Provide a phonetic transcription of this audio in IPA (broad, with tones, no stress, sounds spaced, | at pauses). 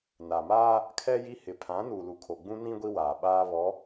n a˨ m aː˦ | kʰ ɛ˦ j i˦ h ɪ˨˦ pʰ ã˨˦ n uː˨ l u˨ kʰ o˨ ɡ͡b ũ˦ n ĩ˦ ɡʷ i˦ w aː˨ ɓ aː˦ β ɔ˨˦